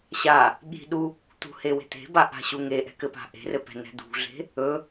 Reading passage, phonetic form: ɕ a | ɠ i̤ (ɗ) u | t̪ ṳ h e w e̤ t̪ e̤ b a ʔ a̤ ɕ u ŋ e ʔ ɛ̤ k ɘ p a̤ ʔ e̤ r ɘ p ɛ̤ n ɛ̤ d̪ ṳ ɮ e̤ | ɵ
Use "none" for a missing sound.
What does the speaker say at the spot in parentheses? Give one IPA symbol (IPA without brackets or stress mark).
ɗ